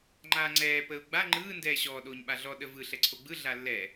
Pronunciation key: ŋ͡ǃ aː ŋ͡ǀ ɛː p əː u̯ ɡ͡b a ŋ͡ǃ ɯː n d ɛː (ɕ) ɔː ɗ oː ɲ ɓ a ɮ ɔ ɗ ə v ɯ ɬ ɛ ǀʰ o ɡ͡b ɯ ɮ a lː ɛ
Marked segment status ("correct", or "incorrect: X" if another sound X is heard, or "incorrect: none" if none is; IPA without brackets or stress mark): correct